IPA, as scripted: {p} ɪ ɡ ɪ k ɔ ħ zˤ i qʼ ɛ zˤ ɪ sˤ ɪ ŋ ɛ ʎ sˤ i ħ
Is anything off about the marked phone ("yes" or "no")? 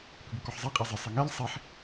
no